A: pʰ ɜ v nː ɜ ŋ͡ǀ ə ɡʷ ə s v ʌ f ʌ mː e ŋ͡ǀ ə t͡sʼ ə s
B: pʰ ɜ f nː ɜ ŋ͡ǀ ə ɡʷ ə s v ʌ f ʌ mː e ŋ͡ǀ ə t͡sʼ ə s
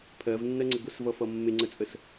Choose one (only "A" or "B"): A